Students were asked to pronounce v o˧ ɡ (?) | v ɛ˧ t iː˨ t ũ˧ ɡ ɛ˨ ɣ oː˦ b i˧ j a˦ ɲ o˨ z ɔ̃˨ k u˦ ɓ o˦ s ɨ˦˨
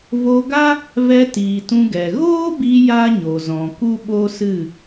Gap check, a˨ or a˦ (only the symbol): a˦